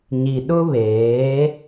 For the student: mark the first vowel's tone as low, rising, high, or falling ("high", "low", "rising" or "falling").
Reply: low